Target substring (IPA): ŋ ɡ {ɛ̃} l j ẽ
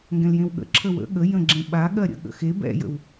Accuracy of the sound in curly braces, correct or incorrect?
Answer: correct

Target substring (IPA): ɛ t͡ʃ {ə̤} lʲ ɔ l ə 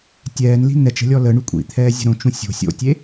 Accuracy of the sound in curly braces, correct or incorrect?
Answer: correct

